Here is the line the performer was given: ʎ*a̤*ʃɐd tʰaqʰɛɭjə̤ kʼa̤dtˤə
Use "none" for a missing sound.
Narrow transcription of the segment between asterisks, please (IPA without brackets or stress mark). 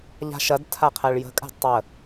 a̤